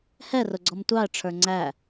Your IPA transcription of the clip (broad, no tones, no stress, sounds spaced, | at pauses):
h ɛ r ʊ ɡ͡ǀ ɔ m tʷ ɑ ə̯ ʈ͡ʂʰ ə˞ ŋ͡ǀ æ